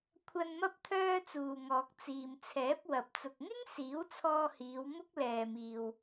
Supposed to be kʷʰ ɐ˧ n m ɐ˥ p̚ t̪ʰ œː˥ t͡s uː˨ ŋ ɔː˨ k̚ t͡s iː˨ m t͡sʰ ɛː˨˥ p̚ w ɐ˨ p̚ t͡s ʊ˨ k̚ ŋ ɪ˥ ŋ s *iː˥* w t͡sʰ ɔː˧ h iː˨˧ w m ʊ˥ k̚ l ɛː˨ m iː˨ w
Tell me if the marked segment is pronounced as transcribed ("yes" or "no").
no